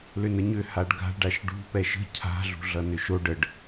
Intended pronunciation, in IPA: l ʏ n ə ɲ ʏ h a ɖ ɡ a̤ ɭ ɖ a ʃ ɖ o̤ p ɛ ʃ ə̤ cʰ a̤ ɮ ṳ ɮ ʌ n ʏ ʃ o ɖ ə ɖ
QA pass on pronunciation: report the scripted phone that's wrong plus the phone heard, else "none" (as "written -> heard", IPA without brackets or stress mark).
o̤ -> ṳ